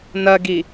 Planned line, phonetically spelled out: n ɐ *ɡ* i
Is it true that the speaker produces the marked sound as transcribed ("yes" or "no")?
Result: yes